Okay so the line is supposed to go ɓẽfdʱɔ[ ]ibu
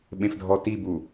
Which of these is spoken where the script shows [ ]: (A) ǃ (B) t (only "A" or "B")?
B